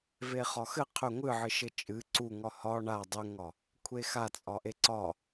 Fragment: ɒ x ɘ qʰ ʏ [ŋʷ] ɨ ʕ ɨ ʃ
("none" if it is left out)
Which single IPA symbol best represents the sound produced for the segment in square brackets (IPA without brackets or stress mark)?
ŋʷ